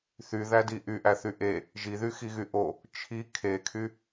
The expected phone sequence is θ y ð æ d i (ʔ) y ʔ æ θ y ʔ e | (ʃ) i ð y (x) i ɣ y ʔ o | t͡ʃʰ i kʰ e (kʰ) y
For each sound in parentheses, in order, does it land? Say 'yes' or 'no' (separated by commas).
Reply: yes, no, yes, yes